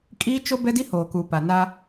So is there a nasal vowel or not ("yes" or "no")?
no